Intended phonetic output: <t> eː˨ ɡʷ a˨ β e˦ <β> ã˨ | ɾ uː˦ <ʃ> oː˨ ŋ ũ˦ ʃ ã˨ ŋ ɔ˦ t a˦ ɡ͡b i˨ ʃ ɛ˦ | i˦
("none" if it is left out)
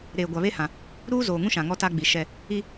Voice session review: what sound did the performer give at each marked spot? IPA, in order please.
ɾ, h, z

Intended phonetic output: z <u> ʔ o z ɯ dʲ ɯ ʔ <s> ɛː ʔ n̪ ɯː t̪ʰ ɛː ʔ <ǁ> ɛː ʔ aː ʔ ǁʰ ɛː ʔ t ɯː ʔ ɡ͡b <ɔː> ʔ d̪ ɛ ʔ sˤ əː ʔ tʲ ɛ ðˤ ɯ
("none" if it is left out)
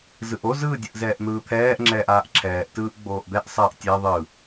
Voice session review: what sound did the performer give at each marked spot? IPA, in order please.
ɯ, z, ŋ͡ǁ, oː

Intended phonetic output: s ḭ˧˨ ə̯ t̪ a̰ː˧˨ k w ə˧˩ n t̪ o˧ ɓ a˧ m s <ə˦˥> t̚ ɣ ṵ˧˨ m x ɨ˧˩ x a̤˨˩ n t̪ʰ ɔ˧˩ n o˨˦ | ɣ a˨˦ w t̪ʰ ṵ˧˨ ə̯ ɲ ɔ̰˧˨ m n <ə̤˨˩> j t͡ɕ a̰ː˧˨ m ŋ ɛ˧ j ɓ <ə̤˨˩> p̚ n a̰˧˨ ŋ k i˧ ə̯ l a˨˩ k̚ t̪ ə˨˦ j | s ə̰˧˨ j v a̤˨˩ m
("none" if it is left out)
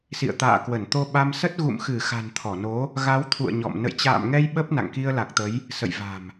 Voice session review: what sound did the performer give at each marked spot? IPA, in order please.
ə˦˥, ə̰˧˨, ə˦˥

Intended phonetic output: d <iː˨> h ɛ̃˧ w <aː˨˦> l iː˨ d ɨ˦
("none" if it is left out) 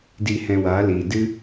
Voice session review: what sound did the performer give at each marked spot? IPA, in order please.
iː˧, aː˨˦

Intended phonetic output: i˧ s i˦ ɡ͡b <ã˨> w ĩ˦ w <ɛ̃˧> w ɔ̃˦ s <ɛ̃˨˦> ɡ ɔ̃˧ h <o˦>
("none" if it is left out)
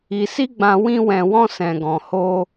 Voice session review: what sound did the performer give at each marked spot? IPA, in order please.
ã˧, ɛ̃˧, ɛ̃˧, o˦

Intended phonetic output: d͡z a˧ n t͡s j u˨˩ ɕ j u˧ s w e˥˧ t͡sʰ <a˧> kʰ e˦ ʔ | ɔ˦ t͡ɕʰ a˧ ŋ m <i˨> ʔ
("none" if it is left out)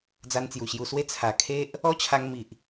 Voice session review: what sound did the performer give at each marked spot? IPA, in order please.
a˨˩, i˨

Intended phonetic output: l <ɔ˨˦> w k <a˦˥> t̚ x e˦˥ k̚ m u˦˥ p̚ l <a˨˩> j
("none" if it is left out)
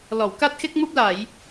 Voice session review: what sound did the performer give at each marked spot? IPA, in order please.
ɔ˧˩, a˦˥, a˧˩˨

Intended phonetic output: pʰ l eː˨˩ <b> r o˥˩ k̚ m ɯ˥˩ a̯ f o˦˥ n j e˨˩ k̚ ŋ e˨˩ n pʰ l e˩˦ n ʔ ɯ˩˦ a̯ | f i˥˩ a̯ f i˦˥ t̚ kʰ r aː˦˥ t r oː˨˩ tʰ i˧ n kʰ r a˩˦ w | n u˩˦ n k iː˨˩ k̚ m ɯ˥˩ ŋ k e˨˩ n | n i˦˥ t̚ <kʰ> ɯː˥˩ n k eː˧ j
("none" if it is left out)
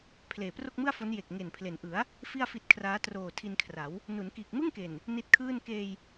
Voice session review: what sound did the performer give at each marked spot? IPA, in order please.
p, kʰ

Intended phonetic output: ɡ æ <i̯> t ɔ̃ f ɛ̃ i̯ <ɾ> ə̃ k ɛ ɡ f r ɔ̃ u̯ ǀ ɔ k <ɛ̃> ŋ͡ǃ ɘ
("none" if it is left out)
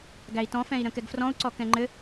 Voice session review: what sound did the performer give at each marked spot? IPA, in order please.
i̯, ɾ, ɛ̃

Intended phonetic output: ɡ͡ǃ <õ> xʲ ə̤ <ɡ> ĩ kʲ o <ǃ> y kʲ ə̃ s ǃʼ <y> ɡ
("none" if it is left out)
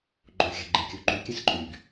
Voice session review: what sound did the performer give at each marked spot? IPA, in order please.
õ, ɡ͡ǃ, ǃ, y

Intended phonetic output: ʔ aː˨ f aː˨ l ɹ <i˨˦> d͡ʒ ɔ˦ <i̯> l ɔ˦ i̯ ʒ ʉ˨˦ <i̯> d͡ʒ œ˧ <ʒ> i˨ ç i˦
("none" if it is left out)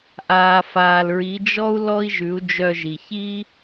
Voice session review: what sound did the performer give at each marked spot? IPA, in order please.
i˨˦, u̯, u̯, ʒ

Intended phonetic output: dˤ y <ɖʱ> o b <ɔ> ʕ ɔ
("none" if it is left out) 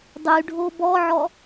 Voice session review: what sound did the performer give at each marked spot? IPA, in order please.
ɖʱ, ɔ

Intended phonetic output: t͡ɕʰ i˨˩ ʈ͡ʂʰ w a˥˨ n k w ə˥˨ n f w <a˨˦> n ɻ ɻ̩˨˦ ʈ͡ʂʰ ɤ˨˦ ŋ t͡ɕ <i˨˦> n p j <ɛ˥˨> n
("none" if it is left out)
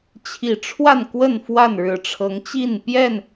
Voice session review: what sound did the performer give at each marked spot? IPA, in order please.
a˥˨, i˥˨, ɛ˥˨

